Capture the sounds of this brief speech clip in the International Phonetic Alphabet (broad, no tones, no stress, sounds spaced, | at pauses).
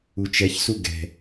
u t͡ʃ ɛ ç s u ɡ ɛ̤